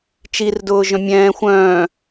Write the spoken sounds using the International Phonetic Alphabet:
t͡ʃirdʊːʒœ̃ mʲɛ̃ː xʷœ̃ː

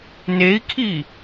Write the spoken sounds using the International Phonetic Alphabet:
nei̯kʰi

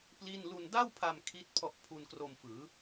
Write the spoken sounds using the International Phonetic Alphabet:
pli˥˩n lu˧nda˥˩wpʰa˧m kʰi˦˥t̚ pʰɔ˦˥ʔpʰu˧nkro˧mfɯː˩˦

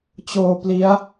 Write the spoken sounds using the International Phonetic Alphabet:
t͡ɕoː˧ pli˦˥a̯

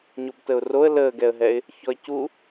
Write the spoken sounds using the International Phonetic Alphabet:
ɲobtəʊ̯roə̯ ləːɡɛə̯ɦɛɪ̯ | çɔɪ̯cu

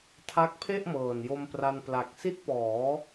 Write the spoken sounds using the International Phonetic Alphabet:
tʰa˦˥k̚pʰe˥˩ʔmɤː˨˩n jo˧mpra˧n pla˨˩k̚ si˦˥t̚pɔː˩˦

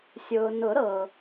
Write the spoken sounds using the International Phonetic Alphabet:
sʲʊː˨ nʊ˨˩˦ ɾɤ˨

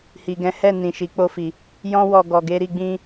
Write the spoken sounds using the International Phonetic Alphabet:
hi˨ɡɛ̃˨˦hɛ˦˨nĩ˨ ʃi˨˦ k͡po˦fi˧ | jɔ̃˦wɔ˧ ɡɔ˨ɡe˧ɾi˧ ɡ͡bĩ˧

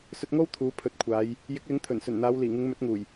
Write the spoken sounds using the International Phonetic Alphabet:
sɵ˧t̚ŋo˥w t̪ʰuː˨˥pʰɵ˨˥t̚kʷʰaː˨˧j | jɪ˨˥k̚lɪ˨˥ŋ t̪ʰɵ˨˩nsɵ˨˩nn̪aː˨˧w liː˨˩ŋɪ˨˧ŋ mɵ˨˥t̚ŋuː˨˩j

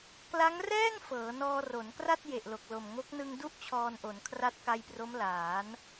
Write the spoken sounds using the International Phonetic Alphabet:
kla˦˥ŋrɛː˥˩ŋ fɤː˩˦nɔː˧ro˩˦nkra˥˩t̚ je˨˩ʔlo˨˩k̚lo˨˩mŋo˦˥k̚ nɯ˧ŋdu˦˥ʔ t͡ɕʰɔː˧nʔo˩˦nkʰra˦˥t̚ ka˧jpro˦˥mlaː˩˦n

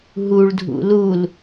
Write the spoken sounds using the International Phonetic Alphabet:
ɦuɭdʱṵ lul

